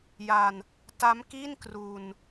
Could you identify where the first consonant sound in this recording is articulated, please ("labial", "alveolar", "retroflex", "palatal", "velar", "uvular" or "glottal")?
palatal